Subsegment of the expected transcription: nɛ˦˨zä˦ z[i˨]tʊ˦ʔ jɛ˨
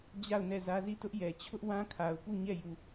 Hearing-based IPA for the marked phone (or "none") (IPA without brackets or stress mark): i˦˨